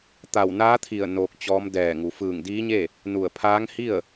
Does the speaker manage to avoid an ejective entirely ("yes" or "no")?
yes